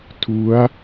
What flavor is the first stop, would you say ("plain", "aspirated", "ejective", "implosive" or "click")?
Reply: aspirated